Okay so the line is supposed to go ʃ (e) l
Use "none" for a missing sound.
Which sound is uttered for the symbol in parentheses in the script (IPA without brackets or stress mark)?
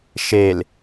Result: e